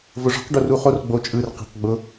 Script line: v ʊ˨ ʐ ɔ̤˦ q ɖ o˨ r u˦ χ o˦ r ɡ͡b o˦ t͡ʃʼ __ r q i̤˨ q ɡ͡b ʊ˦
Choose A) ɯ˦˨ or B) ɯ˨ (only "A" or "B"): A